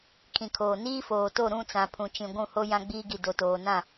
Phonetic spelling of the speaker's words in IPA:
kʰĩ˨kʰoː˨ niː˦foː˨to˦˨ ɾũ˦˨t͡sã˨ pʰũ˨t͡ʃĩ˨ ɡʷũ˦˨ho˦ jã˦ɡ͡biː˦ɡi˨ do˨toː˨nã˦˨

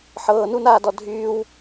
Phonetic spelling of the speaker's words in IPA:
ħɤːnunaːdɔ dʱyːw

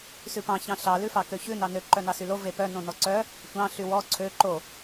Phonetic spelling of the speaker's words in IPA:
sʉpɑ̃ çɑ̃ɬɑ lʉfɑkøçʉ nɑnø ǃœnɑsylo vepœ nõnɔǀœ | tʷɑ̃ ɬywɔ ǀʰø ǃo

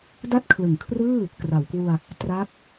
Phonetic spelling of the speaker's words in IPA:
da˥˩t̚kʰlɯ˩˦ŋkʰrɯː˥˩ | kra˩˦wkwu˧a̯ | tra˦˥k̚

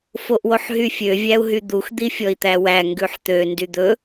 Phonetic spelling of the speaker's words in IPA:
foʔwoħɦyfʲø vʲæu̯ɦyd̪ux d̪ifʲɔi̯t̪æwæ ŋɡʉħt̪ø ndyd̪ɵ

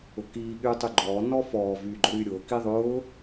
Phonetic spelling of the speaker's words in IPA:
ʊkiː ɠyːtˤyɡ͡ǃɔː nɔ fɔː vyːɡ͡ǃʊɾyːɾʲʊː kiðˤʊː

